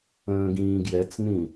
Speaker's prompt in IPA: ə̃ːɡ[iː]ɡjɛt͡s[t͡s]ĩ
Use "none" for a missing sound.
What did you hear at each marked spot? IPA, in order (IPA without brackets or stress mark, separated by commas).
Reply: ĩː, n